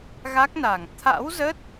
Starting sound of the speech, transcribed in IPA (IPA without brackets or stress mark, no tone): ɣ